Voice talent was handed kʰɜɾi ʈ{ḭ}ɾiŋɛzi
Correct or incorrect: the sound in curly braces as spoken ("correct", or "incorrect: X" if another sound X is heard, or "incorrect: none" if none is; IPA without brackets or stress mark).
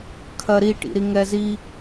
correct